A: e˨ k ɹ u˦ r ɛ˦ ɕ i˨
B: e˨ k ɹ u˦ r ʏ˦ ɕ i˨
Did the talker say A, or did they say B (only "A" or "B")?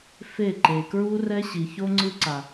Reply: A